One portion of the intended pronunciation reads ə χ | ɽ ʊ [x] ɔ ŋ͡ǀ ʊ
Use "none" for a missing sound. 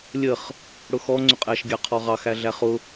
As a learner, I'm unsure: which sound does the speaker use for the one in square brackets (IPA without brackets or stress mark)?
x